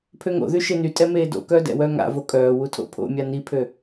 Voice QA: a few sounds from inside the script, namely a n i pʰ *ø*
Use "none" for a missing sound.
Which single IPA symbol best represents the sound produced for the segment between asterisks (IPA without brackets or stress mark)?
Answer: ø